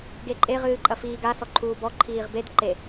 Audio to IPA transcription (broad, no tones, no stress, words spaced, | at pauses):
ɡeǃʼe ʁɨːǃʼɐfiːɡa sɔǃʰuːbɔ ǃʰiːʁbed ǃe